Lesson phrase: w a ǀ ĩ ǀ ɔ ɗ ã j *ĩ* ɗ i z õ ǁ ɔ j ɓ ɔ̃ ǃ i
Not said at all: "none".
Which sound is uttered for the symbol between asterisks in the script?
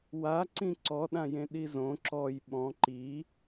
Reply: ẽ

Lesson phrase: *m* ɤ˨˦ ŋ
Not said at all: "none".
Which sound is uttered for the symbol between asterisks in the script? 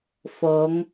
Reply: f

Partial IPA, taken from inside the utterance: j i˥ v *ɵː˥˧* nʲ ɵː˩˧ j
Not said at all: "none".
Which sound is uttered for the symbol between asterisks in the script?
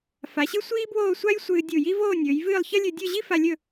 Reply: oː˥˧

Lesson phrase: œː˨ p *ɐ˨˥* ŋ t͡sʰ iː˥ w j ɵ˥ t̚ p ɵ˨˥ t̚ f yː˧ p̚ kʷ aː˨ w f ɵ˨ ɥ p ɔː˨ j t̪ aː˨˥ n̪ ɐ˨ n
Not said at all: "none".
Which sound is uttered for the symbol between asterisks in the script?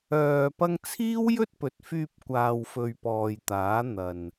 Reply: ɐ˧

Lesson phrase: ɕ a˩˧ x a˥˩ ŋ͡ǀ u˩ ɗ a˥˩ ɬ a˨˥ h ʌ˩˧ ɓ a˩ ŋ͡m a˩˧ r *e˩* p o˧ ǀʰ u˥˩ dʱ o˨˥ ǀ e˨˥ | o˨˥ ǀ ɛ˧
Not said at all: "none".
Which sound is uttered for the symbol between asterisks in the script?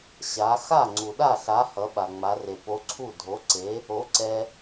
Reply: e˩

